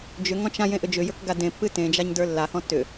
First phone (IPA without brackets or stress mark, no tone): d͡ʒ